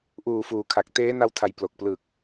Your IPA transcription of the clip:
ʔuː˨˩ fuː˩˦kʰa˨˩k̚ teː˦˥na˧wtʰa˩˦j plo˨˩k̚ plɯ˨˩k̚

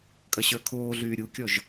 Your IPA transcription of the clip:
kʼɐɕə˞kʰoːɮyː ɾʲukʲɔʒ

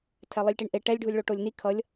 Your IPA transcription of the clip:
tʰɛlˠilʲʈiɳʔe ʈɛlʲ ɖʱulʲɭoʈolʲni kʰʌlʲ

